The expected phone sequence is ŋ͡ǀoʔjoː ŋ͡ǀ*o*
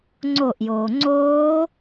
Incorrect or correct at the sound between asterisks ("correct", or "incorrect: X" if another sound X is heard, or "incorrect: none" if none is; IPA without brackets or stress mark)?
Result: incorrect: oː